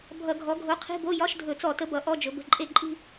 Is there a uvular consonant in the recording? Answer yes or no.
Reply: yes